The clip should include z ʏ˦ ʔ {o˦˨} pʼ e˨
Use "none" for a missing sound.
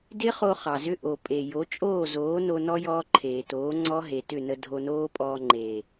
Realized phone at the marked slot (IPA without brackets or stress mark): o˨